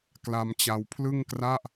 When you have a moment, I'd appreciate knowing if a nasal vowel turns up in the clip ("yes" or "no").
no